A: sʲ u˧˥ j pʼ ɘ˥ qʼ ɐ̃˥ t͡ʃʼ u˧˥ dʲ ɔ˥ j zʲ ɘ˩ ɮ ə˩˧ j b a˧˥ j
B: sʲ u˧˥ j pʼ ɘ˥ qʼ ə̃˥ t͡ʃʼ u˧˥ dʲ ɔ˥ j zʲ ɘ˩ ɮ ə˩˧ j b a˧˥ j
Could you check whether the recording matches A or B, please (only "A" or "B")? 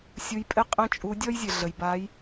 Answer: A